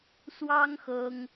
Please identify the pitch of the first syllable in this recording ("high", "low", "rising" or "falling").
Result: high